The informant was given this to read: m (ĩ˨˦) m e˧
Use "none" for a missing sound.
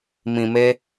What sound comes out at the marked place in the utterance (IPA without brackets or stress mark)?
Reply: ĩ˨